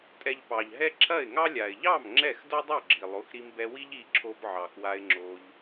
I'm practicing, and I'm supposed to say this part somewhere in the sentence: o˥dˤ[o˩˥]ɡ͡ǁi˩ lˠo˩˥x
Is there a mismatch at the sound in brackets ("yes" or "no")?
yes